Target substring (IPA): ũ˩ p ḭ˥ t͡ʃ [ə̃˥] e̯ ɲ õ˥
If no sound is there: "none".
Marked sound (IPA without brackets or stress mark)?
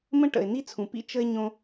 ə˥